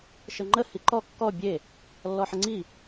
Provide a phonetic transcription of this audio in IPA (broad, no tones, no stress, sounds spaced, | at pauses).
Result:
ʃ ə ŋ͡ǃ ə h i ǃ ɔ kː ɔ bʲ e | lː ɔ ħ ə ŋ͡ǀ i